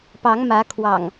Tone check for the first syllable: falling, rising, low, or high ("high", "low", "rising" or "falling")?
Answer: rising